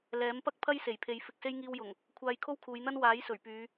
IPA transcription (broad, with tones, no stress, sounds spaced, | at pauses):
l ɛː˨˥ m p ɐ˥ k̚ pʰ ɐ˥ j s e˨˩ j pʰ e˨ j f ɪ˨ k̚ s e˧ j ŋ iː˧ w j ʊ˨˩ ŋ | kʷʰ aː˧ j kʰ o˥ w kʰ uː˨˧ j n̪ ɐ˥ n w aː˨˥ j s ɵ˨˩ ɥ p yː˨˧